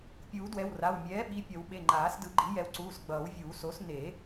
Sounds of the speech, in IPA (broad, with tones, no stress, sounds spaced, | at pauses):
pʲ uː˨˩˦ d w ɛ˩˧˩ w r a˩˧˩ w mʲ ɛː˩˥ ɓ i˩˧˩ pʲ ʌ˨˩˦ w ɓ e˩˧˩ ŋ͡ǃ aː˨˩˦ s d ɯ˨˩˦ ɡ͡ǃ i˩˥ j ɛ˩˥ w ǀ uː˩˧˩ s ɡ͡b ʌː˨˩˦ w vʲ uː˨˩˦ s o˩˥ s n e˨˩˦